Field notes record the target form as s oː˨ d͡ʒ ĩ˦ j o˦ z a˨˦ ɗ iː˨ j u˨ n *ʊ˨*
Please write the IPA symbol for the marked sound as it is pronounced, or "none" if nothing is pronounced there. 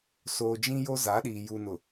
ʊ˨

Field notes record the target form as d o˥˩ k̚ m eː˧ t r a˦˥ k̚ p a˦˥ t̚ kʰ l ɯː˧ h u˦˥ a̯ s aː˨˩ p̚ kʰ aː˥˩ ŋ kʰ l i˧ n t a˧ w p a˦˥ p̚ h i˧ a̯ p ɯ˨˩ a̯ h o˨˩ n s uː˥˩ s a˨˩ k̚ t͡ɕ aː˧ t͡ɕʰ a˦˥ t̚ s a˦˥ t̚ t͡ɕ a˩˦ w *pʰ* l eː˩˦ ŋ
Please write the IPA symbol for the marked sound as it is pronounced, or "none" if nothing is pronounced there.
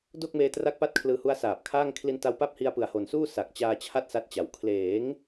kʰ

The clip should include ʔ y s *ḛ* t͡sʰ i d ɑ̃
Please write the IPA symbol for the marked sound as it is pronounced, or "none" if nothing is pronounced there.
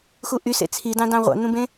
ḛ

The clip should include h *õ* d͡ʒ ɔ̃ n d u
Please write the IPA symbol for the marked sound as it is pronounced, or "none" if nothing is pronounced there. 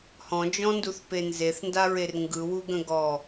ɔ̃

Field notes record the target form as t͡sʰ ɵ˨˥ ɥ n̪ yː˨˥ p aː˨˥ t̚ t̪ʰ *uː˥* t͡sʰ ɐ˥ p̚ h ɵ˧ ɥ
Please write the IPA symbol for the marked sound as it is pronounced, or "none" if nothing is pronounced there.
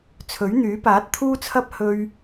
uː˥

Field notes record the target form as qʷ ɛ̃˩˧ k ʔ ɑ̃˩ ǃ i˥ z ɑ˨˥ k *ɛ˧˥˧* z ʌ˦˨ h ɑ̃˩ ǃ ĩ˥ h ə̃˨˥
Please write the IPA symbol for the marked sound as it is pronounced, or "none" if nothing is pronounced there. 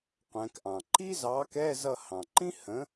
ɛ˧˥˧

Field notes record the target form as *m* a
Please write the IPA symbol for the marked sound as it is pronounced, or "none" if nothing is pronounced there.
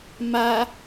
m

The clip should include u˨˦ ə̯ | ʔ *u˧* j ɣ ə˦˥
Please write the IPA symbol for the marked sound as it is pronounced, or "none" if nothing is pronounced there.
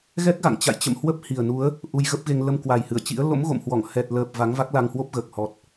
u˧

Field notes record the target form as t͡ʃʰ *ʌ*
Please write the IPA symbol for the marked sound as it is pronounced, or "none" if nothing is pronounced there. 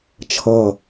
ʌ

